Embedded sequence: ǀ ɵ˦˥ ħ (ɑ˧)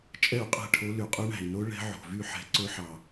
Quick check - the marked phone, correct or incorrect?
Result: correct